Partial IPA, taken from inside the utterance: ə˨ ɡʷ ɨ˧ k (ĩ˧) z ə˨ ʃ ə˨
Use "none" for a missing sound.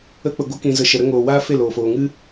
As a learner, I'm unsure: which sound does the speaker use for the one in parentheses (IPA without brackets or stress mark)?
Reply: ĩ˨